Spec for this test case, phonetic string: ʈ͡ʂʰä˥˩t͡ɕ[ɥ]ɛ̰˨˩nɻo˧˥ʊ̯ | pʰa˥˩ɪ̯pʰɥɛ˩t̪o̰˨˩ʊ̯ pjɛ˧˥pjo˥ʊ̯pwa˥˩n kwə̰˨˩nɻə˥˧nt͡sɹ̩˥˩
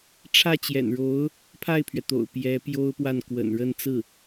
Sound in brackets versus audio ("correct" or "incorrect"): incorrect